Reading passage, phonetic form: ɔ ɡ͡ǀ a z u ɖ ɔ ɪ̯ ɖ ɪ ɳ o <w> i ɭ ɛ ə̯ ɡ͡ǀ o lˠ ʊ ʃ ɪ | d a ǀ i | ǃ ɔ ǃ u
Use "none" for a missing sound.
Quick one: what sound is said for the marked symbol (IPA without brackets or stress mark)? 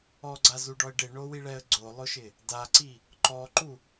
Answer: w